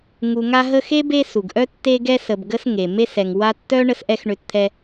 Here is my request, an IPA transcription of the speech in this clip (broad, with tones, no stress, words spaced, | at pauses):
ŋu˨ŋa˦ɦə˦ xe˥be˦ su˩ɡʔœ˥ tːe˦ɡɛ˦sə˨b ɡə˦sŋe˩ me˦sɛ˩ŋ wa˦tːœ˥ ɳə˥sʔɛ˥xɳø˦tt̪ʰɛ˦